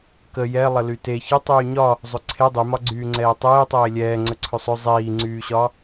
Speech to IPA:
kə jɛ lˠəlyte çɪ tˤyːɲɒ | zˤɵǀʰe dˤymɒɡ͡ǀyːŋ͡ǀɛː tˤeːtˤeː lʲɛːŋ͡ǀə ǀʰɵsˤɵ zˤiːŋ͡ǀyːɕɒ

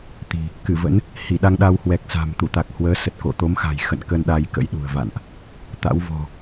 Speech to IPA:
t̪i̤˨˩ | kɨ˧˩və̰˧˥n | hi˧˩ɗa˧ŋɗa˧w hwɛ˨˩k̚sa̤˨˩m t̪u˧˩t̪a˨˩k̚hwəː˨˦ sə˨˩t̚ko̰˧˨ t̪o˨˦mxa̤˨˩j xə̰˧˨n kə˧n ɗa˧jkə̰˧˥jɗṳ˨˩ə̯ va̰˧˨nʔ | t̪a̰˧˥w vɔ̤˨˩

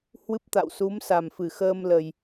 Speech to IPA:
hwɨ˦˥p̚t̪a̰˧˨w su˨˦m sa˨˩mfɨ˧˩xəː˧mlə˨˩j

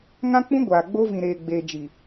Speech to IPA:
ŋã˦k͡pũ˦ ɡʷaː˨ ɡ͡bo˦vĩ˨ɾeː˨ɡ͡beː˨ d͡ʒi˨

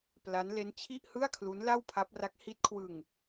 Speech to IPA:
pla˦˥n le˦˥nt͡ɕʰi˥˩ʔhɯ˥˩a̯kʰlu˦˥n la˥˩wpʰa˦˥p̚ra˦˥k̚ hi˦˥t̚kʰwɯ˧ŋ

